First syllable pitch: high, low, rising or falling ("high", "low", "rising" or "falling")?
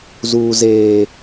low